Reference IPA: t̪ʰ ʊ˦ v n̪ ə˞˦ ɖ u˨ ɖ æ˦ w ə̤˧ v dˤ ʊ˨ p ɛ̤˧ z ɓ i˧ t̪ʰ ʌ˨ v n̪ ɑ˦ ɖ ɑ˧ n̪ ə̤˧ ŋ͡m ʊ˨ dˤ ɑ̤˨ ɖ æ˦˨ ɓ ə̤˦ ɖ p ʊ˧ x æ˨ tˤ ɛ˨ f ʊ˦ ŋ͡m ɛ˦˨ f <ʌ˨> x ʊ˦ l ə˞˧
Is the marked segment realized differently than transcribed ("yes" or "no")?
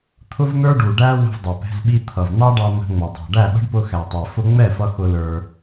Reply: yes